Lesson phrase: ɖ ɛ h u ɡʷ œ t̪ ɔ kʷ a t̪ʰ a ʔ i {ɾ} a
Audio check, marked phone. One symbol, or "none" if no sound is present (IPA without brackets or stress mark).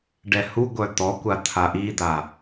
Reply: d̪